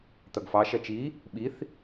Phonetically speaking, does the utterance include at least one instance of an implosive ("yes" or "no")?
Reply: yes